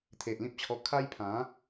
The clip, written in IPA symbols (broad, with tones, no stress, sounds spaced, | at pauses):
t̪ʰ e˨ ʔ l ĩ˦ p̚ t͡ɕʰ ɔ˧ kʰ a˦ j pʰ ã˨˦